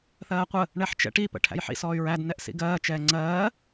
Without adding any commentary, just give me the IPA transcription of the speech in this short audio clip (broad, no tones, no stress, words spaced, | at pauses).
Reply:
θɜːqʷə | ɳɛħt͡ʃɛ̰ʈi pə̰ʈʰæ̰jħḭs ɔːy̯ɹæd nɛʔsḭɡɜː t͡ʃɛːŋ͡ǀɜː